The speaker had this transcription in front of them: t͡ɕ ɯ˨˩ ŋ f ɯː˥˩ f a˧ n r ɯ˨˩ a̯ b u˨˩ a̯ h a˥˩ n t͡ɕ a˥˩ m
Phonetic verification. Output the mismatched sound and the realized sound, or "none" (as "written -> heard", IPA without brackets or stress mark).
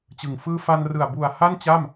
none